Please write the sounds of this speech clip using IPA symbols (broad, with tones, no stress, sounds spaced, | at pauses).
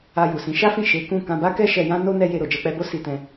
a˧ j u˨ s ĩ˨˦ ʃ a˦ f ĩ˦˨ ʃ e˨˦ k ũ˦˨ k ã˧ b a˦ k ɛ˦ ʃ ɛ˧ j ã˦ n o˦ n ɛ˦ j e˧ ɾ o˨ d͡ʒ ɛ˧ k͡p ɛ˧ b o˦ s i˧ t ɛ̃˧